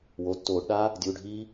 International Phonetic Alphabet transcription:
w o˩˧˩ tː oː˧˩˧ ɖ ɗ a˦˥ | dʲ uː˩˧˩ ɖʱ iː˦˥

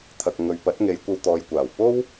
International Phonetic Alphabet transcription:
t̪ʰ ɐ˨ k̚ ŋ ɵ˨ ɥ p ɐ˨˥ t̚ ŋ e˨˧ j kʷ ɐ˧ w t̪ ɔː˨˧ j kʷ aː˨˩ w p o˥ w

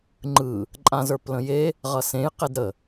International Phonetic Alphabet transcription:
ŋ͡ǃ ɯ | ǃʼ ã z ə˞ p l ə̃ j e | ʁ ʌ s ẽ j q e d ɾ ə

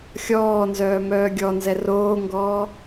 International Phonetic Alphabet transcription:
xʲ ɔː n z œː m œː ɡʲ ɔ n z ɛ r oː ŋ ɡ ɔː

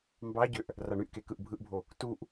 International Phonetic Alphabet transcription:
m b ɑ ɟ ø ʔ | r ɑ ɳ y ʔ k e k ɯ ʔ bʱ ɯ ʔ bʱ o | t u ʔ

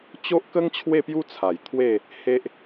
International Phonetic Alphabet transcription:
t͡ɕ o˦ ʔ k ə˦ ŋ t͡ɕʰ w e˥˧ p j u˦ t͡sʰ a˨˩ j t̪ʰ w e˥˧ | h e˦ ʔ

